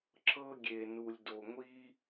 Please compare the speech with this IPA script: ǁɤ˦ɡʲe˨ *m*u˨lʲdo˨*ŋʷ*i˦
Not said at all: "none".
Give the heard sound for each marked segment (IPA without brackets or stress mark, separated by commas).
n, ŋʷ